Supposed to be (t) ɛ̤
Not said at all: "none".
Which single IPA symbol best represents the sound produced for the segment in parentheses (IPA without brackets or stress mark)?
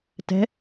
t